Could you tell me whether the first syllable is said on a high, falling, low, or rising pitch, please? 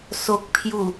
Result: low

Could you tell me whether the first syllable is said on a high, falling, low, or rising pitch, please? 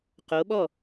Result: rising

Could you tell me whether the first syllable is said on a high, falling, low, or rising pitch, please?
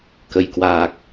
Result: low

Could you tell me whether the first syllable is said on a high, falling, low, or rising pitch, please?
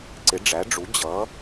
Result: rising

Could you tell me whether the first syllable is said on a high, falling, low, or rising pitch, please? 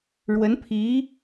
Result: rising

